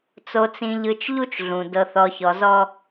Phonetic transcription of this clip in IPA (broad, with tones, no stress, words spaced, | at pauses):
t͡so˨t͡sĩ˨ʎɯ˨t͡ʃ ʎu˦t͡ʃɮũ˨ dɤ˨θɔ˨çɔ˨zɔ˦